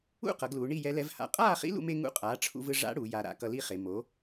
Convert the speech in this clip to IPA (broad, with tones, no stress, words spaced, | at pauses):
ṵ˥˨qʌ˩˧ɡluː˩˧ ɳi˥˨jɛ˧˥lɛ˧˥vha̰˧ qʼaː˥˨χḭ˧˥lṵ˧me˧ ŋṵ˧˥qʼaː˩˥ʈ͡ʂʰṵ˧vɯ˧ ʐa̰˧˥ɽu˩˧ ja˩˧ɾa̰˩˧ kʌ˧li˥˨χe˩˧ mo˩˥